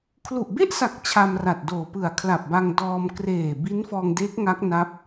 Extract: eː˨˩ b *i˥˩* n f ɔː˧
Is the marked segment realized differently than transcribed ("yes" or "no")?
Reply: yes